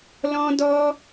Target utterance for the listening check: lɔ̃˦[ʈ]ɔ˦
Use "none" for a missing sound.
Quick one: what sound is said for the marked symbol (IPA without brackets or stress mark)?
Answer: d